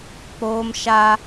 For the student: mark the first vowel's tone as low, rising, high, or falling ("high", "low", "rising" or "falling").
high